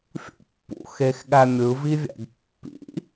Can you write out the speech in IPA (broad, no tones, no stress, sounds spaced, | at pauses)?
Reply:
fʲ ṵ pː ṵ x e x ɠ æ mʲ ɯ v i vʲ æ̰ ɡ pː ḭ